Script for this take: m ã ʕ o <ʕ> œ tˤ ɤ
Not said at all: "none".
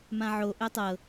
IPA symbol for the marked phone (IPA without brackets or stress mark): ʔ